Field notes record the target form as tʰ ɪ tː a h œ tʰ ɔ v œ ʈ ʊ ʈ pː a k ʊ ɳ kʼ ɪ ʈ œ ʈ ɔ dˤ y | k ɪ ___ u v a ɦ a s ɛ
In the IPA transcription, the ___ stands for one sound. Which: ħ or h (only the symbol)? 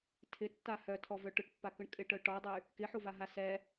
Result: ħ